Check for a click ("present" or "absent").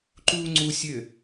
present